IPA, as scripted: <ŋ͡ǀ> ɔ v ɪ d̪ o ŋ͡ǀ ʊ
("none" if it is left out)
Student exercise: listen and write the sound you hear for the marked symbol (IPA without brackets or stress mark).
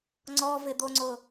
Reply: ŋ͡ǀ